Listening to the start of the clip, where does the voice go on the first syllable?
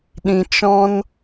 low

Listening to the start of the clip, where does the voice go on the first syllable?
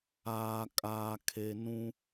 low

